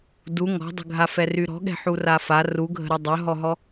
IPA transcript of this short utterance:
d u ŋ ɔ̤ dˤ ə̤ ɡʱ a f ɛ r y ɾ ɔ̤ ɠ ɛ̤ ħ u r a f a r u ɡʱ ə̤ ɾ y dˤ œ ɦ ɔ ɦ ɔ

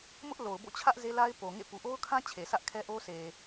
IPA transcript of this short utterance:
m ʊ˦ ʔ l o˨ ʊ̯ b o̰˦˨ t͡ɕʰ ä˦ ʔ z e˦ l a˦ ɪ̯ p o˨ ŋ ḛ˦˨ p u˨ ʔ o˦ ʊ̯ kʰ ã˦ t͡ɕʰ e˨ sʰ ä˦ ʔ kʰ ɛ˦ ʔ o˦ sʰ e˨

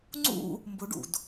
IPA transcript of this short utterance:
ŋ͡ǀ ṵ | m b ʊ ɖ ṵ d

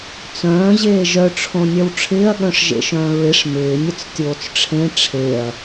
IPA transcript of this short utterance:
t͡s œ̃ː ʑ eː ʒ œ ʈ͡ʂʰ õ nʲ œ w ʈ͡ʂʰ ɪː ɐ̯ ɠ œ̃ ʂ ʒ ḛ ʃ œ̃ː ɹ ɪ ʂ m ɪː nʲ ə t͡s tʲ oː t͡s ʈ͡ʂʰ ẽ ʈ͡ʂʰ e ɐ̯

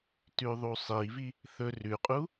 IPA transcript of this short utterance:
t ʉ ðˤ u sˤ i v i | θ ɵ r ʉ qʼ u

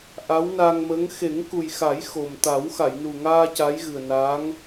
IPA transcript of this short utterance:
ʔ a˧˥ w n a˧ ŋ m ə˧˥ ŋ x e˨˩˦ ŋ k u˨˩ j x a˨˩˦ j x o˨˩ m t̪ a˨˩˦ w x a˨˩˨ j n u˨˩ ŋ aː˧ c a˧˥ j ɣ ɨ˨˩ ə̯ n aː˧˥ ŋ

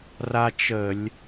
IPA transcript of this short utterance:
r a˦ t͡ʃ ə˧˩˧ lʲ

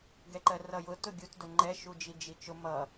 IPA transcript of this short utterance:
ɡ ɛ ǃ ɜ r ʌ j ʊ t ʊ ɡʲ u t d ʊ ŋ͡ǃ ɛ ʃ u d͡ʒ i d͡ʒ i t͡ʃ ʊ m ʌ

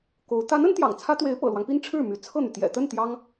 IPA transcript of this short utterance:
k o˧˥ ʊ̯ t̪ a˧˥ n ə˧˥ n t̪ j ɑ̰˨˩ ŋ t͡sʰ ä˥ t̪ w e˧˥ ɪ̯ p ɤ̰˨˩ l w ɑ˦ ŋ p i˥ n ʈ͡ʂʰ ɻ̩˥˩ m y˧˥ t͡sʰ ɤ˥˩ n̪ y˩ t̪ j ɛ̰˨˩ t̪ ə˥˩ n t̪ j ɑ˥ ŋ

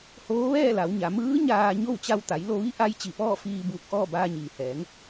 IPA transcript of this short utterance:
h oː˧˥ ʋ ɛː˥˨ l a˩˧ w ɲ a˩˧ m ɯː˧˥ ɲ aː˧ ɲ o˥˨ w t͡ɕ a˧ w t̪ a˩˧ j l o˧ ʋ i˧˥ ʔ a˧˥ j t͡ɕ i˧˩ p ɔː˥˨ f iː˧ b uː˧˩ k̚ ʔ ɔː˥˨ b aː˧ ɲ iː˩ h ɛː˩˧ ŋ

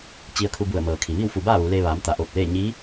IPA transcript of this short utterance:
t͡ɕ i˧ ə̯ kʰ u˧ b u˧˩ ə̯ m ɤː˩ kʰ i˩ ʋ i˥˨ w f u˧˩ b aː˥˨ ʋ u˩˧ l eː˧ ʋ aː˩˧ m t̪ a˩˧ ʔ oː˧˩ p̚ l eː˥˨ ɲ i˧˥

